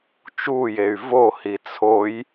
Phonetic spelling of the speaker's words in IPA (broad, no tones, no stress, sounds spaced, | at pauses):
t͡ʃ uː j e y̯ v o h i t͡sʰ o j